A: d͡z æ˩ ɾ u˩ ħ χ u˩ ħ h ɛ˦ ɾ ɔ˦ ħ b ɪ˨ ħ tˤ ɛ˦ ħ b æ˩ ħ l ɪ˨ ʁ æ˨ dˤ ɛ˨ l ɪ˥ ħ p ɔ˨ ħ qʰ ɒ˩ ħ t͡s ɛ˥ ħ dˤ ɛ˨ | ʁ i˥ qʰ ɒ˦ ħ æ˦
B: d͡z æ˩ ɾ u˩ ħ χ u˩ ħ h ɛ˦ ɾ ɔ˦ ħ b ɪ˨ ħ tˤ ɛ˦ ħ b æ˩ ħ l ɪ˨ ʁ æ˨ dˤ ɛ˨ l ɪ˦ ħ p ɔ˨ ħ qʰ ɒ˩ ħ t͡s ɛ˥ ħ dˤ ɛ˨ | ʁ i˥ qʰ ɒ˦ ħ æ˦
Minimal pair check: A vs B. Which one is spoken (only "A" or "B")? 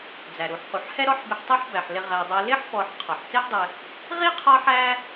A